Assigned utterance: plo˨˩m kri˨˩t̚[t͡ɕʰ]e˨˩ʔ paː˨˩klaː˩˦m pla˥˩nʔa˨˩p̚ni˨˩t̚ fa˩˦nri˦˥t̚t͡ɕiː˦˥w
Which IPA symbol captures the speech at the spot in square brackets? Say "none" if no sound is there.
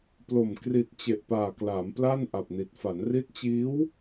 t͡ɕ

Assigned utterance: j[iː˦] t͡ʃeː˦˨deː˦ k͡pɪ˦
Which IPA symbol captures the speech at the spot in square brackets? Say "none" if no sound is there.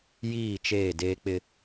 iː˦˨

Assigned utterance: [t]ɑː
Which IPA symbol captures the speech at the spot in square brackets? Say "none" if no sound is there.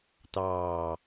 t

